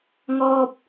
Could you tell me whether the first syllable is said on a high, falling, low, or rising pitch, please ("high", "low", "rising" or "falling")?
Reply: low